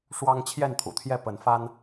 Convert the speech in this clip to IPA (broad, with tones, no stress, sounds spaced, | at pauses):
ʂ w ɑ˦ ŋ t͡ɕʰ j ɛ˥˨ n t̪ʰ ṵ˨˩ t̪ʰ j ɛ˥˨ p ə˨˦ n f a˦ n